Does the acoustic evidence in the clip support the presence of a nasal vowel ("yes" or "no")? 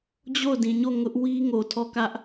yes